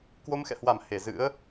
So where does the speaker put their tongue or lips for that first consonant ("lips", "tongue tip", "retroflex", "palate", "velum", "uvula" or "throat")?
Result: velum